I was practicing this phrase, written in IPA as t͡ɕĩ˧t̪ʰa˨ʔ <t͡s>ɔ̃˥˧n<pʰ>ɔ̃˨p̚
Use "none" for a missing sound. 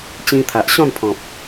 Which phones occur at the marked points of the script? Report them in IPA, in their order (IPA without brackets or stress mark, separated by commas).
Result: ɕ, pʰ